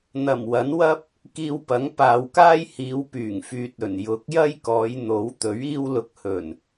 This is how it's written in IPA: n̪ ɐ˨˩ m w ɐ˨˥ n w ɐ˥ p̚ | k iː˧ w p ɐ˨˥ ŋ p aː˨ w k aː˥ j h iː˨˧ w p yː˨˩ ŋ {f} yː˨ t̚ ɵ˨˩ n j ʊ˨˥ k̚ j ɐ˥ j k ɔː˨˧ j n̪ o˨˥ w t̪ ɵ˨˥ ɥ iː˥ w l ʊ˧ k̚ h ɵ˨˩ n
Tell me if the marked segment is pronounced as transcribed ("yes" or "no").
yes